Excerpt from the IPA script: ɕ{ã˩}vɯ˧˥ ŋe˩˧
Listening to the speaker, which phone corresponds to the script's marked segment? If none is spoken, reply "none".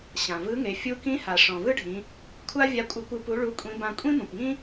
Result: ã˩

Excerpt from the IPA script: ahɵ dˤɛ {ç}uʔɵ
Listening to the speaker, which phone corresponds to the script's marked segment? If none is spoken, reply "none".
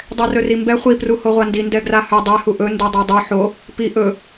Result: h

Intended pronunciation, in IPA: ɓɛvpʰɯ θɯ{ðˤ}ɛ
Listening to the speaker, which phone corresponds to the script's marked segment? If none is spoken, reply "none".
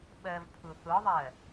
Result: ðˤ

